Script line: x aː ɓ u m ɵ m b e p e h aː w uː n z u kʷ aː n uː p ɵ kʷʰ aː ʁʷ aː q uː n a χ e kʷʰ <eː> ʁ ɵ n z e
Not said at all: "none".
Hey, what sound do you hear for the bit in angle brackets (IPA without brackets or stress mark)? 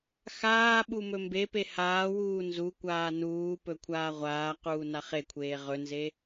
eː